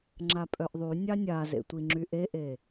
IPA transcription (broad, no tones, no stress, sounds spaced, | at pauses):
ŋ͡ǁ a pʼ œ ʔ ðˤ y nʲ ɑ nʲ a z ḛ tʷ i ŋ͡ǁ y ʔ e ʔ e